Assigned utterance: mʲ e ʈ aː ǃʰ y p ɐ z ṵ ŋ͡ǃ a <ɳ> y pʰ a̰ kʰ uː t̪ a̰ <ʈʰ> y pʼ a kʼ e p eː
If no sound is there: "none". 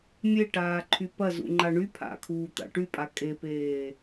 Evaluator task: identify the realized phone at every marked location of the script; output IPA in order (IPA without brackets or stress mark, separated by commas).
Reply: ɳ, ʈ